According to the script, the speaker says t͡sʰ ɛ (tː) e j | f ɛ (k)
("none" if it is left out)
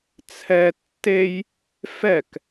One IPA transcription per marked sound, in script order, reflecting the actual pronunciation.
tː, k

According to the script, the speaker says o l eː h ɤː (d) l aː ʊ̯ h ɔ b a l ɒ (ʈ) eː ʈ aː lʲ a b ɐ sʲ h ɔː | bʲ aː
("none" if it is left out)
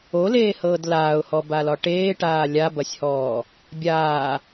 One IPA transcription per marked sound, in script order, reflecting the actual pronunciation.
d, ʈ

